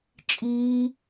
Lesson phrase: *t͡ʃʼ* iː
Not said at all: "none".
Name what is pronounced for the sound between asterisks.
t͡ʃʼ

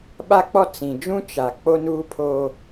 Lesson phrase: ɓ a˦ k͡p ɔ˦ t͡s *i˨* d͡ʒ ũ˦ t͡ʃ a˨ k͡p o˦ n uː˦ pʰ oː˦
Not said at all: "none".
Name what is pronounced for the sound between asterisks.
ĩ˨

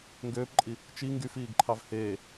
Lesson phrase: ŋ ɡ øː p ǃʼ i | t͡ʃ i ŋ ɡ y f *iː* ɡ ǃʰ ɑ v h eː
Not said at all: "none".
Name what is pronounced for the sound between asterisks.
iː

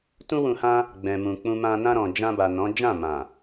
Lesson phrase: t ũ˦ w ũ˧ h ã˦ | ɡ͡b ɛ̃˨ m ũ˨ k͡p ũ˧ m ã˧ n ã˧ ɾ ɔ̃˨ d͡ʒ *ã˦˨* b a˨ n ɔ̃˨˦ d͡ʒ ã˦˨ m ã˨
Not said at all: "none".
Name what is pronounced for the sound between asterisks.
ã˧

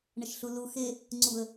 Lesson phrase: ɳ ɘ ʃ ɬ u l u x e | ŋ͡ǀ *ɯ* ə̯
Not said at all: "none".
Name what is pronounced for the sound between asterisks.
u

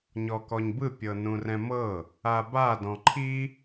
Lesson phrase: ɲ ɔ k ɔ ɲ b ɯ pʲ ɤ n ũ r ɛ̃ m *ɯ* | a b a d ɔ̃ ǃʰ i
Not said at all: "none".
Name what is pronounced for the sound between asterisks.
ɤ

